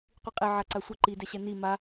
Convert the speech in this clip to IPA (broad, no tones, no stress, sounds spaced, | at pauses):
qʷ i qʼ e ʕ a ǀ a sʷ ɐ ǃ i d ɛ ɕ ɛ n i m a